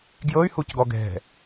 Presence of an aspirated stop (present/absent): absent